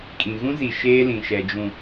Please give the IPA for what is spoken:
kʼ ĩ˨ ɣ ũ˦ z i˨ ʃ eː˦ l ĩ˨ ʃ ɛ˨ d͡ʒ ũ˨

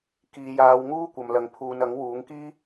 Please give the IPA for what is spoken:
k iː˨ j aː˨˧ w ŋ uː˥ kʷ ɐ˨ m l ɐ˨ ŋ pʰ uː˨ n ɐ˨˥ ŋ w uː˨˥ ŋ k iː˥

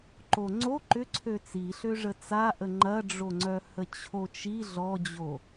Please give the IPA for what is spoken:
ǃ o ŋ͡ǀ o ǃ ʏ ǀʰ ø t͡s i ɬ ø ʐ ə t͡s a ʔ ə ŋ͡ǃ ɐ ɖ͡ʐ o ŋ͡ǀ œ h ə t͡ɕʰ o t͡ʃ i ɮ ɔ d͡ʑ o

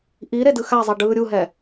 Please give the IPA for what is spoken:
ʔ i ɾ e d ɯ x a zˤ ɛ ɖ ɯː ɾʲ u ɦ ɛ

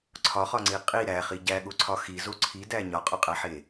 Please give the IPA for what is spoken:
ǀʰ ɒ χ ɒ ŋ͡ǀ i qʼ i ɾ æ χ i ɟ æ ɠ o ǀʰ ɒ x i z o ǀʰ i d æ ɲ ɒ qʼ ɒ qʼ æ ħ e

